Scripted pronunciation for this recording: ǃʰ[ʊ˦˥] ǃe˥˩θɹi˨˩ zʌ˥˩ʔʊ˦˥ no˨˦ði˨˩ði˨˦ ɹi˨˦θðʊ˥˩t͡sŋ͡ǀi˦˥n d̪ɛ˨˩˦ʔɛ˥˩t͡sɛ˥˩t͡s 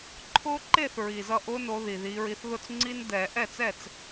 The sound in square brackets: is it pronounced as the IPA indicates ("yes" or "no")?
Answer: yes